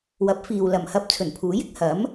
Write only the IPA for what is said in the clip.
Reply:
wɐ˨˥p̚fiː˨w lɐ˨˩mhɐ˧p̚ t͡sʰɵ˨˩npʰuː˨˥jɪ˧k̚ hɐ˨˥m

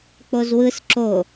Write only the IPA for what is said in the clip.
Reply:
k͡pozwɯs ǁo

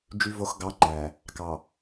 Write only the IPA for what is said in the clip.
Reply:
d͡ʒy˨vo˨xɡɑ˨˦ ŋ͡ǃæ˨ | kɑ˨

